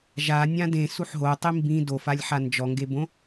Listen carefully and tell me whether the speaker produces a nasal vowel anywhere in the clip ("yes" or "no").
yes